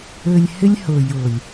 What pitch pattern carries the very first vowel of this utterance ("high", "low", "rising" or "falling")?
low